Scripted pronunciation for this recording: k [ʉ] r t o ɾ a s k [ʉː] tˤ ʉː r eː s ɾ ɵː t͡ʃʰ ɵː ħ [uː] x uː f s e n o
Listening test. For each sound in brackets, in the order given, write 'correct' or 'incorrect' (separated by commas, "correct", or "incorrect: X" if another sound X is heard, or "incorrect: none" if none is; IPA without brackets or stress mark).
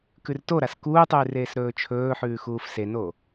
correct, incorrect: uː, incorrect: ʉː